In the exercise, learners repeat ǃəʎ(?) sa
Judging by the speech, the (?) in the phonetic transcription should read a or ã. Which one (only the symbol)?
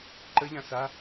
ã